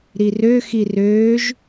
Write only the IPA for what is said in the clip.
ɾ i r ø x i r øː ʒ

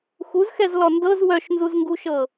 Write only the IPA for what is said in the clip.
x u z x ɛ z l ɔ n d ɤ z w œ ʃ n z u z ŋ ɡ u ʃ ɤ

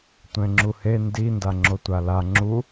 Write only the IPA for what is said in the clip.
tʷ ɛ̃ ŋ͡ǁ u h e n d i n d a ŋ͡ǁ o tʷ a l a ŋ͡ǁ u

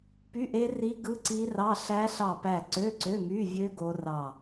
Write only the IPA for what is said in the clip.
p y˧˥˧ ʔ e˦˥ r i˦˥ ɡ ɯ˧˥˧ ǀ i˦˥ r ɑ˧˥˧ ɬ æ˦˥ ɬ ɑ˦˨ p æ˦˨ ǀ ø˧˥˧ ǀ ø˧˥˧ m y˧˥˧ vʲ ø˦˥ ɡ o˦˥ r ɑ˦˨

